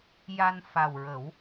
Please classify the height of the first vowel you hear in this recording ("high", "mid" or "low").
low